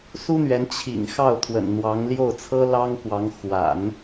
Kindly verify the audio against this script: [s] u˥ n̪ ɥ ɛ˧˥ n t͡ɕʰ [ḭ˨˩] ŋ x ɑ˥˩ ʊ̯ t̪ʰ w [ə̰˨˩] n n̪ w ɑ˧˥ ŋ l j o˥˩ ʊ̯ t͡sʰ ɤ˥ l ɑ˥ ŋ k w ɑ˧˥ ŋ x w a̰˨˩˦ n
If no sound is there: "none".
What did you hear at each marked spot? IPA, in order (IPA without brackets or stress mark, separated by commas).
s, ḭ˨˩, ə̰˨˩